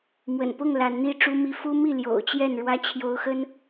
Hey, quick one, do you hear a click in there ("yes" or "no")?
no